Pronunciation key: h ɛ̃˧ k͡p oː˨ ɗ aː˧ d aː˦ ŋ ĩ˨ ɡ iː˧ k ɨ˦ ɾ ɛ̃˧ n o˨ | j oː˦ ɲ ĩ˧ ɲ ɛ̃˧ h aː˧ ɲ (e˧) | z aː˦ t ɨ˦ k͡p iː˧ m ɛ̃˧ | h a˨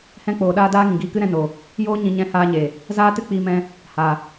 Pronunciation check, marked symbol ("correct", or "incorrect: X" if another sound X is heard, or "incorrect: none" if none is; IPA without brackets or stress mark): incorrect: e˨